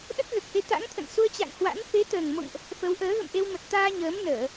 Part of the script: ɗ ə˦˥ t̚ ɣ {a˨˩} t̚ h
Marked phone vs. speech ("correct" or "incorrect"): incorrect